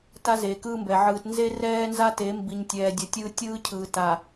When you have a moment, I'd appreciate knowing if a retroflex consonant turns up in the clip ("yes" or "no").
no